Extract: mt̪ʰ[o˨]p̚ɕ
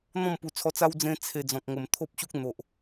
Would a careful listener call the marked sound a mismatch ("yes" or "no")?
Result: yes